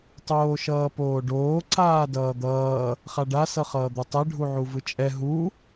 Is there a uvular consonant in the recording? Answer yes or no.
yes